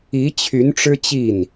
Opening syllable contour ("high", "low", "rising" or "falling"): rising